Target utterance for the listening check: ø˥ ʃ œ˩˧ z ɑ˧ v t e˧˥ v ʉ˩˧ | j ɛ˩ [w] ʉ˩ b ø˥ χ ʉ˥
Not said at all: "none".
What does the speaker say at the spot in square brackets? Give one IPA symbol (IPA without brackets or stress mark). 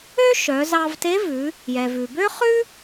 v